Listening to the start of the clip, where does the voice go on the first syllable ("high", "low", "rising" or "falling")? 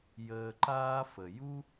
low